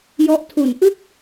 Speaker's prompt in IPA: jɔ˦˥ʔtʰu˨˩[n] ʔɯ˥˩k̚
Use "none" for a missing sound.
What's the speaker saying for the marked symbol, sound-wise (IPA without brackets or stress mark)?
n